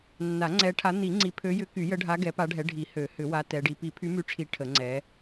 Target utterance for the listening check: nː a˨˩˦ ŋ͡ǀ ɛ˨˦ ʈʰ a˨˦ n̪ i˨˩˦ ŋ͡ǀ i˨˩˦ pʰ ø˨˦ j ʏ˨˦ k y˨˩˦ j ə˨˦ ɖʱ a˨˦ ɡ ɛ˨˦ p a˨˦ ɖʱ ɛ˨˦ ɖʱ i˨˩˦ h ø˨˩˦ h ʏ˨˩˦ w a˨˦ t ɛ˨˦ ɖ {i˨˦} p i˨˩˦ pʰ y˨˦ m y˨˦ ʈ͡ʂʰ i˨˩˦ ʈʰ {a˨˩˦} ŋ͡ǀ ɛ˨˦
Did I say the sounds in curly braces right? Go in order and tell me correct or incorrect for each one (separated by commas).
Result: correct, incorrect